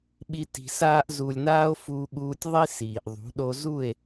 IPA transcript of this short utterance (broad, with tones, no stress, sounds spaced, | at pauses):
ɓ i˦ t i̤˧ s aː˦ ʔ z u˨ lʲ n aː˧ o̯ f u˧ ɠ uː˧ tʲ ðˤ i˦ s iː˨ ʔ ðˤ ṳ˨˦ ɗ o˧ z u˦˨ e̯